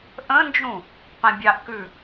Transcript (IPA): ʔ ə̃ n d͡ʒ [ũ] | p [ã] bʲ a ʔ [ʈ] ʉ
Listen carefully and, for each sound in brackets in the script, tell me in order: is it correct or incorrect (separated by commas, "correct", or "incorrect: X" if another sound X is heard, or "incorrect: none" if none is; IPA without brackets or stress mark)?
correct, correct, incorrect: k